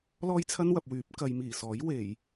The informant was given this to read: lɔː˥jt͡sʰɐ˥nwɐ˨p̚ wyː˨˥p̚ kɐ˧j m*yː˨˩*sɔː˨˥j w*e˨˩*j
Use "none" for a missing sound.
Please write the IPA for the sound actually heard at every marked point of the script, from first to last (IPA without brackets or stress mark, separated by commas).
iː˨˩, e˨˩